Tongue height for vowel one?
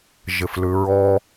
high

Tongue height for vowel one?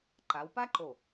low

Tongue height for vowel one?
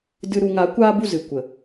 high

